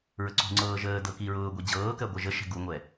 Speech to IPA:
ɹ ə ǀ ṳ ŋ͡ǀ ɤː ʒ əː d ɤ k i ɹ ʊː ɡʷ i d͡ʑ ɤː k ɜ ɡʷ ɜ ʒ ə ʃ ɛ̤ ɡ u ŋʷ ɛ

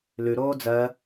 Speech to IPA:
l ʉ ɾ oː d͡z ɜ

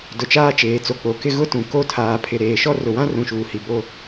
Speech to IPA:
d ʊ˨ t͡ʃ aː˦ t͡ʃ eː˨ t͡s o˨ k͡p o˨ k ɪ˦ ɣ ʊ˦ t ũ˨ k o˦˨ tʰ aː˨ pʰ ɪ˨ ɾ eː˨ ʃ ɔ˦ r ʊ˨ w ã˦ r ũ˨ ʃ uː˨ h i˨ b o˦

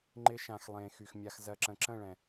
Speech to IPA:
ŋ͡ǃ ɪ˧ ʃ ã˨ x lˠ ẽː˨ x y˨ x mʲ a˧ x z ɜ˧ ǁ ə̃˨ ǁ ə̃˦˨ ɭ ɛ̃˨

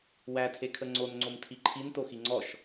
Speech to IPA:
w æ tʰ e kʰ ə ŋ͡ǀ o n ŋ͡ǀ o m tʰ i ǃʰ i n t o x i ŋ͡ǀ ɔ ʃ

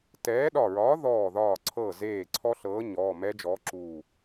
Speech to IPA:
t ɛː˨˥ ɗ ɒ˧˩ ɹ ɒː˨˥ ð ɔː˧˩ ð ɒː˧˩ ǀʰ ɤ˧˩ z eː˧˩ ǀʰ ɔ˦˥ ɬ ɤː˨˥ ɲ ɔː˩˧˩ m ɛ˦˥ d͡ʒ ɔː˨˥ ǁ uː˧˩

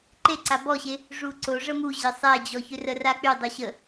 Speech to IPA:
ǃ e ǀ a b ɔ ɕ e | ʐ u ǀ o ʐ ə m u ʑ ɪ sˤ ɛ d͡ʑ ɔ ç ʏ r ə r a k͡p y dˤ o ɕ ə

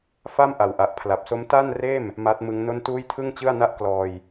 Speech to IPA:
f a˥˩ m ʔ a˨˩ w ʔ a˨˩ ʔ pʰ l a˨˩ p̚ s o˦˥ m t a˥˩ n r eː˥˩ m | m aː˦˥ t̚ m ɯ˦˥ ŋ n o˥˩ n t uː˥˩ j tʰ ɯ˥˩ ŋ t͡ɕ ɯ˥˩ a̯ n a˥˩ ʔ k l ɔː˧ j

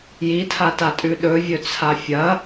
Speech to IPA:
j i tʰ a t a tʼ ʉ ɗ ɵ vʲ ɵ t͡sʰ a fʲ ɐ

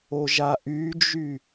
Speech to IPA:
o ʒ a ʔ y d͡ʒ y

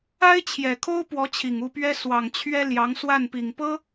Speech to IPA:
a˥ ɪ̯ t͡ɕʰ j ɛ˨˩ kʰ o˥ ʊ̯ p w ɔ˧˥ t͡ɕʰ i˨˩ ŋ u˥˩ p ɥ ɛ˥ s w ɑ˨˩ ŋ t͡ɕʰ ɥ ɛ˥ l j ɑ˧˥ ŋ s w a˥˩ n p i˨˩ ŋ p ɤ˥

